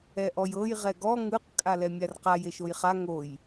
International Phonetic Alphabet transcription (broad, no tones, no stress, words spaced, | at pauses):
ɛʔɔjɤj ʁɛɡɔ ŋɯq kʼalɛmʲarqaj eʃojχa ŋoj